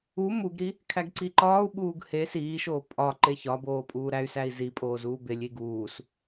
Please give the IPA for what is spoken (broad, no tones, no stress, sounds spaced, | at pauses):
u m u ɡ ɾ i | kʰ æ ɡ ǀ i ǃ ɒː u̯ ɓ uː ɡ h e s iː ʃ oː pʼ ɒ ǃ e ç ɒ b oː pʼ uː ɾ æ y̯ s æ i̯ z i pʼ oː z uː b e lʲ i ɡ uː s